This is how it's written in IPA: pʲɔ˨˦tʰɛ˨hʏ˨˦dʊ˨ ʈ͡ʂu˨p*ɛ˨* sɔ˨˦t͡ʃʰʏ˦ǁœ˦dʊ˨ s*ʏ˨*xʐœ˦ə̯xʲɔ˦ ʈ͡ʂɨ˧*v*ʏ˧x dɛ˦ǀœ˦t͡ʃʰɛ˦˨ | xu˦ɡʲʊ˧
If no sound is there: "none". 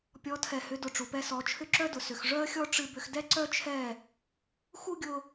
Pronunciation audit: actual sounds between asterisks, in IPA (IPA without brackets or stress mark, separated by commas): ɛ˧, ʏ˨, b